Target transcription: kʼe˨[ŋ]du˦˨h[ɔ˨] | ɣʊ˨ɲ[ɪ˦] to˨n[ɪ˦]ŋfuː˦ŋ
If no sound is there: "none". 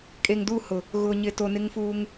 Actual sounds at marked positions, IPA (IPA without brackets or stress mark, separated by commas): ŋ, ʊ˨, ɪ˨, ɪ˦